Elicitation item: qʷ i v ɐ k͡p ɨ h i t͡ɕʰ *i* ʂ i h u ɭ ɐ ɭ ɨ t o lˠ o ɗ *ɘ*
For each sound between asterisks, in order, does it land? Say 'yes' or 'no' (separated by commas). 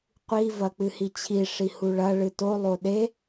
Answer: yes, no